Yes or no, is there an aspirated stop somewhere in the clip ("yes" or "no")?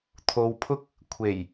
yes